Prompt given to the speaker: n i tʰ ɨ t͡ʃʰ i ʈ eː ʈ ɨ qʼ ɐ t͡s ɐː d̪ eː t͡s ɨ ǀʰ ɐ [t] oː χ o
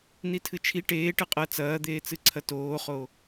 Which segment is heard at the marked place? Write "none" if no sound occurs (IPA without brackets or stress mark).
t